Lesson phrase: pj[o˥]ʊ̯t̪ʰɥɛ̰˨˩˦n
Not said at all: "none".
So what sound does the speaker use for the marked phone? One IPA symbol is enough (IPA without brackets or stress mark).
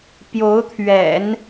o˧˥